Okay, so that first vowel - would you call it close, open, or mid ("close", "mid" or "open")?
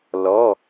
mid